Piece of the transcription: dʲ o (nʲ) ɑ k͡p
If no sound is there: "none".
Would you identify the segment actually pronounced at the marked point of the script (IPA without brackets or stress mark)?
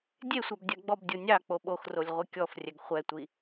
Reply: nʲ